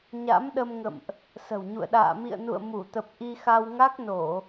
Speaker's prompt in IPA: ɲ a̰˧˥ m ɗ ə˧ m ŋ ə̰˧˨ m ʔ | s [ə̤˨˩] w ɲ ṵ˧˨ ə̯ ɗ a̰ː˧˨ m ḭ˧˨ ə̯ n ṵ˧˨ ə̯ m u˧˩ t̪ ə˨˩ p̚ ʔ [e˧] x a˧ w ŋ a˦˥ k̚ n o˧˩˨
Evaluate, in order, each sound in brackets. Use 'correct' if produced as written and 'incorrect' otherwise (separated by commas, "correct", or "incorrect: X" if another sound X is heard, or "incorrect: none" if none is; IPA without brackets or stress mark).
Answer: correct, incorrect: i˧